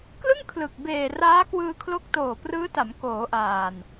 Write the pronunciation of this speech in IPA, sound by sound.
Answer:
k l ɯ˥˩ ŋ kʰ l ɯ˨˩ k̚ b eː˨˩ r aː˦˥ k w ɯː˧ kʰ l o˦˥ k̚ t oː˨˩ p r ɯː˦˥ t a˩˦ m k oː˩˦ ʔ aː˨˩ n

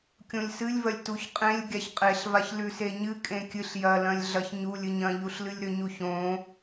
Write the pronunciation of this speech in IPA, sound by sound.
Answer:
kʲ õ lʲ s ɨ lʲ v ɐ lʲ t u ç qʼ ẽ lʲ ɡʲ a ç qʼ e ɬ v a ç l ʉ s e ɲ ɨ kʼ ẽ kʲ ɨ ɬ j ɐ l ɐ̃ lʲ ɮ ɐ ç ɲ u lʲ ɨ ɲ ɐ̃ ʎ u ɬ l ɨ lʲ ɾ ɵ ɲ u ç õ

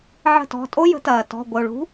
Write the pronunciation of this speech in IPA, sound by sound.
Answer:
ʕ ə̤˦˨ t ɔ̤˩˧˩ tʼ o˥ j ə̤˨˥ t ɐː˩ t ɔ̤˩˧˩ ɡʷ ə˩ o̯ ɭ ṳ˨˥

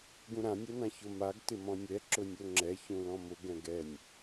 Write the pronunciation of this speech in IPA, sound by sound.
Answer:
ɡ ũ ɾ ã nʲ ɛ n ã ç ʊ m a ɡ t ɪ m ɔ̃ nʲ ɛ ǁ ʊ nʲ o ŋ͡ǁ ɛ ç ũ l ɔ̃ m ʊ ɡ ɛ̃ ɡ ɛ nʲ

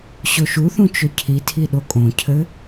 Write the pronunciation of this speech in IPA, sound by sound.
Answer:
ɕ o ʃ u θ ũ t͡ʃ ɵ cʰ i tʰ i ɗ o kʼ õ cʰ ɘ

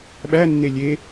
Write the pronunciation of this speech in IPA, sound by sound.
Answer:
ɓ æ nː e lʲ e

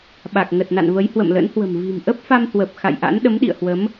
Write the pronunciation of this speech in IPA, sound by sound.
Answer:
ɓ a˨˩ k̚ ŋ ə˨˩ t̚ n a̰˧˨ n v ə˨˦ j h w ə̰˧˨ m l ə̰˧˥ n h w ə̤˨˩ m v i̤˨˩ m ʔ ə˦˥ p̚ f a˧ m h w ə˨˩ p̚ x a̰˧˨ j ʔ a̰˧˥ n ɗ ə˨˦ m ɗ ḭ˧˨ ə̯ h w ə˨˦ m

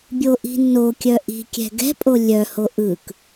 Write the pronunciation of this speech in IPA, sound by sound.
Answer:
bʲ o ʔ i̤ nː o kʲ œ ʔ i̤ kʲ ɛ̤ ɡ ɛ̤ pʼ o lʲ œ h o ʔ ɯ k

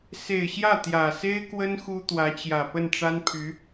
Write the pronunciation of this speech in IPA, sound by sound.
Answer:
s e˨˩ ɪ̯ ɕ j ä˥˩ t̪ j ä˨˩ s e˥ ɪ̯ k w ə˥ n x u˥ t̪ w ä˧˥ t͡ɕ j ä˨˩ p ə˥˩ n ʈ͡ʂ a˥ n pʰ y˧˥

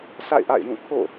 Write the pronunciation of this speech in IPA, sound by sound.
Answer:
sʰ a̰˦˨ ɪ̯ ʔ a̰˦˨ ɪ̯ j ũ˦˨ kʰ o̰˦˨

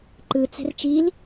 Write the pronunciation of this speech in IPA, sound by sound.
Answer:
ǃ ɯ t͡s ɛ̤ r t͡ʃ i l

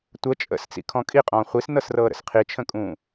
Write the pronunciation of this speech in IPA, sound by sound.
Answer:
tʷ ə t͡ʃʼ ə̰ s t͡s ḭ kʰ ɔ̃ kʼ i qʼ ɔ̃ː χʷ i s n ɤ s r ɤː ɾ ə̰ s qʰ i t͡ʃʰ ə̃ kʼ ũː

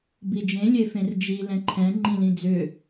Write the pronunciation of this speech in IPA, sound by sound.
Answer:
b i d͡ʒ ẽ lʲ e f ẽ r d͡ʒ i l ɛ̃ ǃʰ ɛ̃ ŋ͡ǃ ĩ l ĩ d͡z ʏ

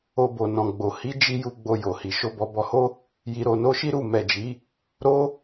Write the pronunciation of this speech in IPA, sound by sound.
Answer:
o˧ b o˨ n ɔ̃˨ ɡ͡b o˨ h i˨˦ d͡ʒ i˧ j u˧ ɡ͡b o˧ j o˨ h i˨ ʃ o˧ b ɔ˧ b ɔ˧ h o˦ | j i˧ ɾ o˧ n o˦ ʃ i˦ ɾ u˦˨ m ɛ˨ d͡ʒ i˨˦ | ɾ o˦

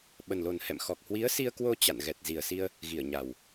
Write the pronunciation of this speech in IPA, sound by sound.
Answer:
ɓ ə˨˩ n l o˨˩ n h ɛ̰˧˨ m x ɔ˨˩ k̚ h w i˨˦ ə̯ s i˧ ə̯ k w o˧ t͡ɕ a̰˧˨ n ɣ ɛ˨˩ t̚ z i˨˩ ə̯ s i˧ ə̯ | ɣ i˧˩ ə̯ ɲ a˨˩ w

